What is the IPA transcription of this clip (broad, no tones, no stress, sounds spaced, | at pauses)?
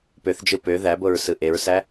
p ø θ d͡ʒ ɯ p ø ð æ b o ɹ s ɯ ʔ e ɹ s æ